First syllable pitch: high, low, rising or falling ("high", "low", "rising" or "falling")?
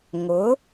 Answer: rising